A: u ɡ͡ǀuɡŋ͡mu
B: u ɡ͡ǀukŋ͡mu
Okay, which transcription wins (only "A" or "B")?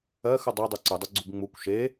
A